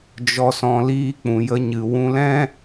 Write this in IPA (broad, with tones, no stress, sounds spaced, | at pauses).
d͡ʒ ɔ˧ s ɔ̃˧ l iː˦ k͡p ũ˨ j ə˧ ɲ ɨ˨ w ũ˧ l ɛ̃˦